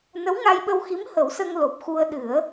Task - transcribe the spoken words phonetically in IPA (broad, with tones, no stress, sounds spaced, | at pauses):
n ə˧˥ w ŋ a˧ j ɓ ə˧ w x i˧˥ m h ə˨˩˦ w s ə˧ ŋ l o˨˩ p̚ x u˧ ə̯ ɗ ɨ˨˩˦ ə̯